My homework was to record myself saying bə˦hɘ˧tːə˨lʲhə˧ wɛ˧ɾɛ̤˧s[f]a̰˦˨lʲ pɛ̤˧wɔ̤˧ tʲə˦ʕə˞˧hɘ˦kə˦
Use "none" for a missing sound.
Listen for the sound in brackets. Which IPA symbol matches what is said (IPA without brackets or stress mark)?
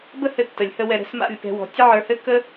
m